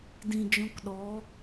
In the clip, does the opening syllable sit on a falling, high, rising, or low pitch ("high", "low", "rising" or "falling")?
low